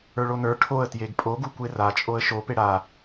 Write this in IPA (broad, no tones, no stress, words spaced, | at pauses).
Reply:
ə˞ɭonə˞ ʈʰoə̯ tjeɡpʼoɡu kʷerat͡ʃʼoə̯ ʃo peɽa